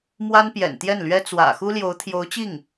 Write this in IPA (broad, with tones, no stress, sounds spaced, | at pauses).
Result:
m w a˥ n p j ɛ̰˨˩ n t̪ j ɛ˥˩ n l ɥ ɛ˥ t͡s w ä̰˨˩ x u˥ l j o˧˥ ʊ̯ t̪ʰ j o˧˥ ʊ̯ t͡ɕ i˥˩ ŋ